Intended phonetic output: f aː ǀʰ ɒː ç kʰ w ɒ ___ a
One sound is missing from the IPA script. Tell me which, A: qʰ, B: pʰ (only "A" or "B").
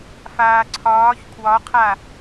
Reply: A